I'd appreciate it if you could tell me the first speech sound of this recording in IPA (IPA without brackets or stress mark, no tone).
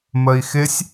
m